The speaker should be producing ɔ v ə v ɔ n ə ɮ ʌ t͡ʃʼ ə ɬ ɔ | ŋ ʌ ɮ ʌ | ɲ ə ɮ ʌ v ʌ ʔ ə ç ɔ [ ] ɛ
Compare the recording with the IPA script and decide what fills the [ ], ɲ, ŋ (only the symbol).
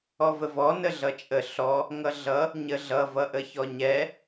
ɲ